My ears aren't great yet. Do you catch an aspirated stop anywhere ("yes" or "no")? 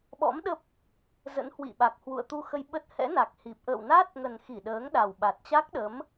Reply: no